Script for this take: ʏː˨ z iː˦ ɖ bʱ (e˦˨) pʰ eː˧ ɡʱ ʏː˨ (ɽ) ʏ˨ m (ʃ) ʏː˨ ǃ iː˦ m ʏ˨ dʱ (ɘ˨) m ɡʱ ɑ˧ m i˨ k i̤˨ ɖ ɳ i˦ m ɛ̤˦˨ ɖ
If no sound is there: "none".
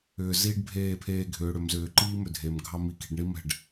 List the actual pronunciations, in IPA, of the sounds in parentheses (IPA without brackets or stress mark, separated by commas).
eː˦˨, ɽ, z, e˨